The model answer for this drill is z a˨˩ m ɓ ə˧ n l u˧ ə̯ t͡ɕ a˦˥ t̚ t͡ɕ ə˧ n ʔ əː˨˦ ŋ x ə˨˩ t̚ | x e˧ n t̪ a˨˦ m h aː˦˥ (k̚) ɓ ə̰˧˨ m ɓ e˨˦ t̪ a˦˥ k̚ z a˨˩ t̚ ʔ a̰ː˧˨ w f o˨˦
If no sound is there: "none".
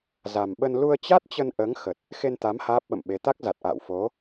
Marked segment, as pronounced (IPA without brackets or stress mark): p̚